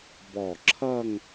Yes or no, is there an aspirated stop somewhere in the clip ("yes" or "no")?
yes